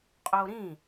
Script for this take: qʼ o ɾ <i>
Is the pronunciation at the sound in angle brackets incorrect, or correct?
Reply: incorrect